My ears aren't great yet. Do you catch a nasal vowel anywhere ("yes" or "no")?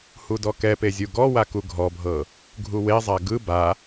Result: no